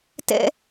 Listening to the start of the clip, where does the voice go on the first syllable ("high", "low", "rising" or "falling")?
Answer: high